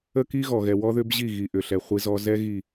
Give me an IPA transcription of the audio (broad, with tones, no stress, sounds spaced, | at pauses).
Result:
ə˦ k i˦ ɣ ɔ˨ ɣ ɛ˨ w ɔ˦ ð ʏ˦ b ʑ i˦˨ ɣ i˨ ʔ ʏ˨ ɬ ɛ˨ χʷ i˦ z ɔ˦ z ɛ˦ ɣ i˨